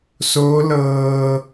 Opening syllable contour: rising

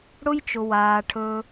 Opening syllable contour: high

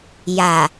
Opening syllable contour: low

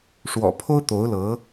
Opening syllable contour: low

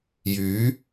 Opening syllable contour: rising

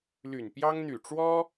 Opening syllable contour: low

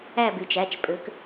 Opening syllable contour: falling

